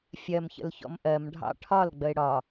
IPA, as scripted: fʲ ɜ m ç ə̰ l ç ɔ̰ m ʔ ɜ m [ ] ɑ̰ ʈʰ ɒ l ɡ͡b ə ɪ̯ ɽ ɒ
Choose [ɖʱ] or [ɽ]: ɖʱ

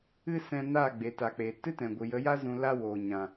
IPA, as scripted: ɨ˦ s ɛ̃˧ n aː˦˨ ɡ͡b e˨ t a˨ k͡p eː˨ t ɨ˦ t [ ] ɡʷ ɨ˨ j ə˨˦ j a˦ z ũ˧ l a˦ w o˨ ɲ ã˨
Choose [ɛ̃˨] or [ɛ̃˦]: ɛ̃˨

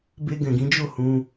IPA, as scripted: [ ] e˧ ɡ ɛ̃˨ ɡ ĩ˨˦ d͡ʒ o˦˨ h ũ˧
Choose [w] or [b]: b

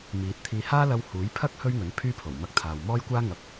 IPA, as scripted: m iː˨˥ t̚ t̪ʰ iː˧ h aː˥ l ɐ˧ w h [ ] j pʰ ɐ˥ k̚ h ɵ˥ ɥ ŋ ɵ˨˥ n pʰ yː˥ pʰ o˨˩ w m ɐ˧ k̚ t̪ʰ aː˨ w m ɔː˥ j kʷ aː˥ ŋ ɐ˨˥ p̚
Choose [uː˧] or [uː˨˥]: uː˨˥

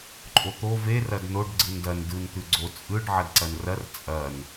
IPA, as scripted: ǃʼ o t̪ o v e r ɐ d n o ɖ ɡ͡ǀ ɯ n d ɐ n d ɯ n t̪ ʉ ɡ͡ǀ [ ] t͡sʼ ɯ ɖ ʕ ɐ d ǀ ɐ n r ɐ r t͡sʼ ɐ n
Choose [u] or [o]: o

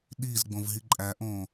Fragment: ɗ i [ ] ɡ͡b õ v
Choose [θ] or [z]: z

